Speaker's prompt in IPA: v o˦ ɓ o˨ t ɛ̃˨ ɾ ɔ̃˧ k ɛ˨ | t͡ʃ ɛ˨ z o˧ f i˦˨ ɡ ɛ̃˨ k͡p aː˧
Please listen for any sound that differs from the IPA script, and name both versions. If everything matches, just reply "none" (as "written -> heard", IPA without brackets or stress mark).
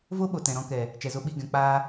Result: f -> ɓ